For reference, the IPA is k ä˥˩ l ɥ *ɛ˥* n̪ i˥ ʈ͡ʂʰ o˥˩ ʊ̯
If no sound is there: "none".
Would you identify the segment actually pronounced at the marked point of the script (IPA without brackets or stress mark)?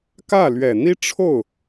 ɛ˨˩